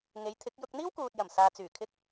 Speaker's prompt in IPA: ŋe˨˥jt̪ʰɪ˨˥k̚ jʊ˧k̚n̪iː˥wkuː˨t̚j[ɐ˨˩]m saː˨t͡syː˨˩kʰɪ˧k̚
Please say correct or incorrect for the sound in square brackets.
correct